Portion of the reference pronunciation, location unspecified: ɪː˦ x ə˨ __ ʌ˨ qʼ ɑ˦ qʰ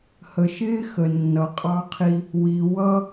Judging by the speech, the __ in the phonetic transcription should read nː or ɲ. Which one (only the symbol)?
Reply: nː